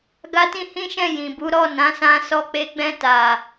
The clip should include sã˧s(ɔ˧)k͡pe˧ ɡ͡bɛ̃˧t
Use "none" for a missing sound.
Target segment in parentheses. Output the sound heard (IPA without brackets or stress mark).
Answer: ɔ˧